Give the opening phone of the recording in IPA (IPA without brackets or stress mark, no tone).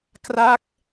k